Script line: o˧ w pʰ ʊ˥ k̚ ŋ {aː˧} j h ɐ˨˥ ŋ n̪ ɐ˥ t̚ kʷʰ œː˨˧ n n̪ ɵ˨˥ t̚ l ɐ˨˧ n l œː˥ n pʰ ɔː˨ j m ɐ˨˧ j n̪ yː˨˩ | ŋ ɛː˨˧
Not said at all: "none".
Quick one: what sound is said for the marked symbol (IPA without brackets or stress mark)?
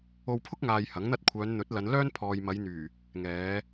aː˧